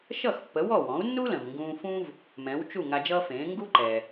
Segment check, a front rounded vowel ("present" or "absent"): absent